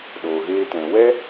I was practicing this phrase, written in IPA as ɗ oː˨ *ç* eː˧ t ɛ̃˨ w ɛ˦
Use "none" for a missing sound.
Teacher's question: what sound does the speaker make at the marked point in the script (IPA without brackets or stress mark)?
ɣ